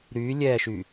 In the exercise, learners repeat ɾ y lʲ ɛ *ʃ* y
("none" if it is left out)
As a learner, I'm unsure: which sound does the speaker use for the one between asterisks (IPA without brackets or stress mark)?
ʃ